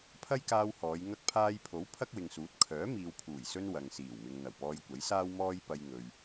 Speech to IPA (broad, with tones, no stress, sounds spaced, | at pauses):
pʰ ɐ˥ j k aː˧ w h ɔː˨˧ j ŋ ɐ˧ k̚ pʰ aː˧ j pʰ o˨˥ w pʰ ɐ˥ k̚ w ɪ˨ ŋ s uː˨˥ t̚ kʰ œː˨˥ m iː˨ w pʰ uː˨˩ j s ɵ˧ n w ɐ˨ ŋ s iː˨˩ w m ɪ˨ ŋ n̪ ɐ˨˩ w p ɔː˧ j kʷ ɐ˨˥ j s aː˥ w m ɔː˥ j p ɐ˧ j ŋ ɵ˨ ɥ